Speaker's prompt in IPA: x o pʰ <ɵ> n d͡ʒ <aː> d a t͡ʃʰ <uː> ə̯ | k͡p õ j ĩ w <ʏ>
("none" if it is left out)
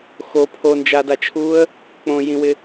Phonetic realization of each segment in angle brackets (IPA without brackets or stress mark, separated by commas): o, aː, uː, ɪ